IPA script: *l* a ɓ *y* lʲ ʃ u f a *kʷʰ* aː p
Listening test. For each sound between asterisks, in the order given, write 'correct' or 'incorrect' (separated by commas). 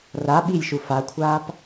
incorrect, incorrect, correct